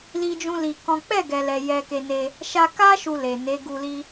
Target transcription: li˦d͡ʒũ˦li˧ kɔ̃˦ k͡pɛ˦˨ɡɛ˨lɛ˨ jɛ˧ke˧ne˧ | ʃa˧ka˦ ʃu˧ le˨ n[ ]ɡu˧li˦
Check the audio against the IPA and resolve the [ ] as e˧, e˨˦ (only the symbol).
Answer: e˨˦